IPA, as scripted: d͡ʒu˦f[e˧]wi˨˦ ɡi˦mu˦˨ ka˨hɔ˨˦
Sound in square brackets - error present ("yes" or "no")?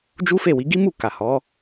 yes